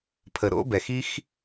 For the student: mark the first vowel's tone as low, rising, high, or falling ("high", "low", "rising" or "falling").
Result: low